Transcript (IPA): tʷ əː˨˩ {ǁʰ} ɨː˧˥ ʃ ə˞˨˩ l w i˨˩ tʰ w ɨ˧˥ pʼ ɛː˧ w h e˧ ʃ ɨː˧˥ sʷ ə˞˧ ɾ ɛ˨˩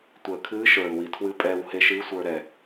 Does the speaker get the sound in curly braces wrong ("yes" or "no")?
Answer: yes